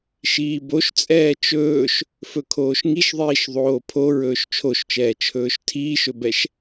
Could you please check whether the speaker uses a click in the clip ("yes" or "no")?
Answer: no